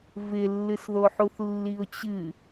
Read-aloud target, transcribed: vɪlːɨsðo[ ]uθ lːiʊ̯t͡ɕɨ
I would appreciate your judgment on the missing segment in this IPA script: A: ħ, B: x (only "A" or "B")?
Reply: A